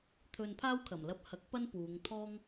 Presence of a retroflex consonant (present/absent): absent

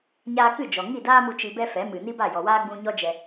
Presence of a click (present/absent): absent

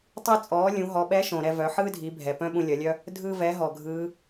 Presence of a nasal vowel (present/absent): present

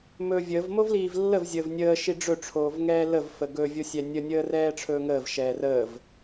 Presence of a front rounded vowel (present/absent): absent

